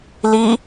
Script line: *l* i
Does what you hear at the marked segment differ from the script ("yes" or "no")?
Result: no